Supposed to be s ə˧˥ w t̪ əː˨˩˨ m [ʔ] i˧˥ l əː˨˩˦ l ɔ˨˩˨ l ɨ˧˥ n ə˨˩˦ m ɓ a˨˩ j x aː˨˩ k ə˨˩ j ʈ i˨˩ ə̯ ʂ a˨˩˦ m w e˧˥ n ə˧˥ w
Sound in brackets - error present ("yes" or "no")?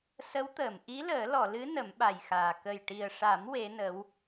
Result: no